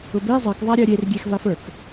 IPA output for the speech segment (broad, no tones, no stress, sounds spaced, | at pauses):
ʊ b e zˤ ɜ k ðˤ a ɾʲ ɜ ɾʲ e r ɡʲ e x v a f ə˞ k